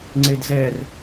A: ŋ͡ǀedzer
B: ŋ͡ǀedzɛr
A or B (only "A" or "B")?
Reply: B